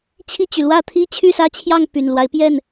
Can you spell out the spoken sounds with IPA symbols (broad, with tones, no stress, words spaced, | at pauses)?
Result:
t͡ɕʰi˥˨t͡ɕy˩ lwä˥˨t̪ʰi˦ t͡ɕʰy˥˨sä˦t͡ɕʰjɑ˥˨ŋ py˨˩nlwa˦ɪ̯pjɛ˥˨n